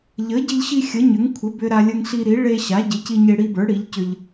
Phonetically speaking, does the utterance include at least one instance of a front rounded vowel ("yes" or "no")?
yes